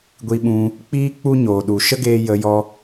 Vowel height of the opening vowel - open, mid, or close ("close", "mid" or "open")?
close